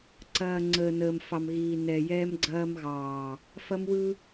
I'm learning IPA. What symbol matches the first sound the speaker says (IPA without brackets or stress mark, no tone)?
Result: ǀ